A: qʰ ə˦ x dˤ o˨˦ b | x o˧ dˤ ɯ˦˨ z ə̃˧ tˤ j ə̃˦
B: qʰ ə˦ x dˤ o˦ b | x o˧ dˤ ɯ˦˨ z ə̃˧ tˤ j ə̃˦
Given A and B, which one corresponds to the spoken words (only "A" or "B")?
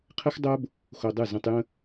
B